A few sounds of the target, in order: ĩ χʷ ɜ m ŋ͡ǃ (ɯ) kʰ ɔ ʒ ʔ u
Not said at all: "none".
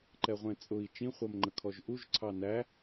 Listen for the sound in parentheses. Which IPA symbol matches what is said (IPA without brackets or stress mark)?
ə